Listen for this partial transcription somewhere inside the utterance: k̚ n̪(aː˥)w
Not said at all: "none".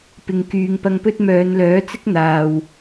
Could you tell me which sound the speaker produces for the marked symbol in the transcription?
aː˨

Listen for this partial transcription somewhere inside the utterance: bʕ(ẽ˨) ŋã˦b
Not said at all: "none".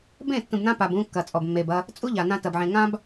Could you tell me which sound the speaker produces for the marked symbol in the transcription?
ẽ˨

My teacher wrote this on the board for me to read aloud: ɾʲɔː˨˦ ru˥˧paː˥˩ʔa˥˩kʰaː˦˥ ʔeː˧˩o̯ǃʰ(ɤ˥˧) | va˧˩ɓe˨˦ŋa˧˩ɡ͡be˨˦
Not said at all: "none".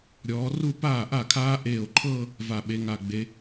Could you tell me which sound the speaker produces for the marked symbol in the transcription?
ɤ˥˧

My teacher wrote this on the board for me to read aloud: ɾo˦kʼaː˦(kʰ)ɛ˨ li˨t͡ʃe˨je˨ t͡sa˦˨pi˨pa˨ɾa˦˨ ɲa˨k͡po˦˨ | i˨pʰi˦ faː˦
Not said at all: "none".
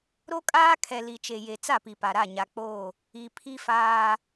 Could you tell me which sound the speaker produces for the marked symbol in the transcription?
kʰ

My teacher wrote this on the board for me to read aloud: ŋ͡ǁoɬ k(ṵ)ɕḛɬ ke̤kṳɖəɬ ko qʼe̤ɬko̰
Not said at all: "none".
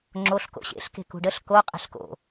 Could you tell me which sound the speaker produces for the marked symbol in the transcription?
o̰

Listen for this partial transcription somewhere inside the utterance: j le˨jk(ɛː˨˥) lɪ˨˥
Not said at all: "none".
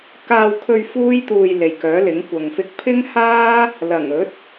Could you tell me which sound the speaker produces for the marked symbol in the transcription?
œː˨˥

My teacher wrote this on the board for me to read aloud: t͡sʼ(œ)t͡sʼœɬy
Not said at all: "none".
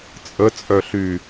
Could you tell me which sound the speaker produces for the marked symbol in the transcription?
ə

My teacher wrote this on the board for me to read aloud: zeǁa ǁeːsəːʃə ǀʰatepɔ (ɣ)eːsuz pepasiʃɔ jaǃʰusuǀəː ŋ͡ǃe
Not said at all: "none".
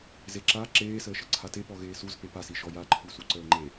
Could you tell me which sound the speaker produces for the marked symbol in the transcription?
ɣ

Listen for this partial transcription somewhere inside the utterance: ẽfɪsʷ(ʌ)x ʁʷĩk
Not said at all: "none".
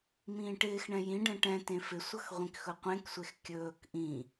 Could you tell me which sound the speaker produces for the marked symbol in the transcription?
ʌ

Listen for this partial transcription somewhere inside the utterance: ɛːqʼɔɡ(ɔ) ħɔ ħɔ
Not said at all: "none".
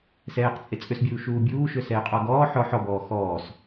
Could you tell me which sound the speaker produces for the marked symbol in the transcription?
ɔː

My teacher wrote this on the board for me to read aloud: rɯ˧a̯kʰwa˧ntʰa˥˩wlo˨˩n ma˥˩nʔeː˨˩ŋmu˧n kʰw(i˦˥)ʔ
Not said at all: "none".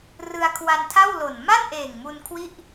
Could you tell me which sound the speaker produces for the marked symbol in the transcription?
i˥˩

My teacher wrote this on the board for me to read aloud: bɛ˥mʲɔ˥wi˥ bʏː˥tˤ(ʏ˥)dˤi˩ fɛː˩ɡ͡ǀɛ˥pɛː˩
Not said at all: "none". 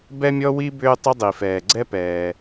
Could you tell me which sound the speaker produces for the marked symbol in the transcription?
ʏ˥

